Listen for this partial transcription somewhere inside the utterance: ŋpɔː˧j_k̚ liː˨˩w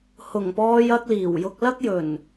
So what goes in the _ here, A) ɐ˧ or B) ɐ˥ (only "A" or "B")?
A